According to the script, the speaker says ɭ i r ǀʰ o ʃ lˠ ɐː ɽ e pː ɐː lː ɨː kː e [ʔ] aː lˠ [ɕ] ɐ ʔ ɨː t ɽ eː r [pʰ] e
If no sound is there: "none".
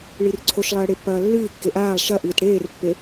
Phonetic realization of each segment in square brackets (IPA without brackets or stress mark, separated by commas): ʔ, ʃ, pː